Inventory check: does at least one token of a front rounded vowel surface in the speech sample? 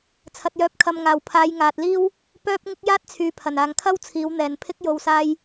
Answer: yes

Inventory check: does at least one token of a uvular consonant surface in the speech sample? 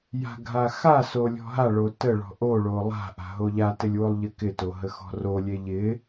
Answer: no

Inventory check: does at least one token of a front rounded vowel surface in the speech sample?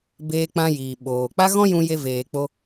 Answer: no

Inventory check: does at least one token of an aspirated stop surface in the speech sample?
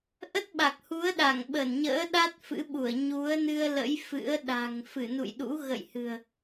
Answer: no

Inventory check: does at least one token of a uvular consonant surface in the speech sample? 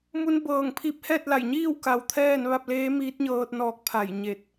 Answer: no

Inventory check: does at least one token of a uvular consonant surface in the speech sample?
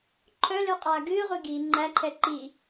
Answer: yes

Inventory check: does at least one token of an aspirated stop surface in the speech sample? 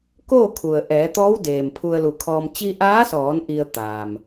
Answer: yes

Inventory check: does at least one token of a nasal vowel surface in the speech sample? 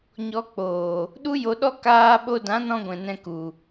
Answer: yes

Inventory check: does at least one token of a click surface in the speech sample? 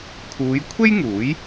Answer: no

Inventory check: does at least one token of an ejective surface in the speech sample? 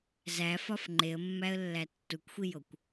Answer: no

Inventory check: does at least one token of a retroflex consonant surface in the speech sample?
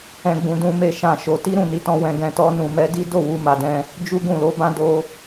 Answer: no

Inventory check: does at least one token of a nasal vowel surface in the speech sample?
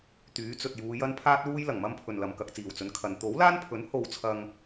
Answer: no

